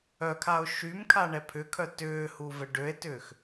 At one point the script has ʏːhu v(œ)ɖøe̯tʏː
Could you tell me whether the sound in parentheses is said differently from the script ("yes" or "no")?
yes